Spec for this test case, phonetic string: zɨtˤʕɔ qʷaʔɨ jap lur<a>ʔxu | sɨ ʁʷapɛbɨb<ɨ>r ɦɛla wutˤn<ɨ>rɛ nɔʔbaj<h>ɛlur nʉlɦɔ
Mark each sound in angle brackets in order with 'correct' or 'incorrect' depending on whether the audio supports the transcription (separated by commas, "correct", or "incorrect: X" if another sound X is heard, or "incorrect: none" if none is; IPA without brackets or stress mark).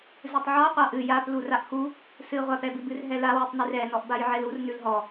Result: correct, correct, correct, incorrect: ʕ